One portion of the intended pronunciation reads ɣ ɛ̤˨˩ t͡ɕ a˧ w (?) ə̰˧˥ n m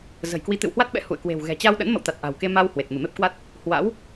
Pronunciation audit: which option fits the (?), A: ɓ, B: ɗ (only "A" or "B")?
B